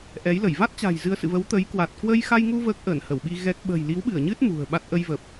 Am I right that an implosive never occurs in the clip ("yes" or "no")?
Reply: no